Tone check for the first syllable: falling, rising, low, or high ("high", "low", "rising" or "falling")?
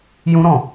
high